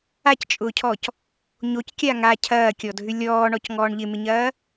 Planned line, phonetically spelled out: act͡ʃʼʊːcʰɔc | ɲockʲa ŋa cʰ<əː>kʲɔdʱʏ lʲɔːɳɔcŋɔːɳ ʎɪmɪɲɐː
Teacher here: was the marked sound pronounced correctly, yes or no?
no